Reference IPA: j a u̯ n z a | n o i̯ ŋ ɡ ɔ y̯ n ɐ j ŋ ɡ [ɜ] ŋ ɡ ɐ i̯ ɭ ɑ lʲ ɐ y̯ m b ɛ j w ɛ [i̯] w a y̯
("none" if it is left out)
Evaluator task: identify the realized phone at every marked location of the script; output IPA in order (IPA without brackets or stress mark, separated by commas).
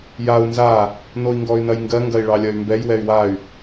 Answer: ɜ, y̯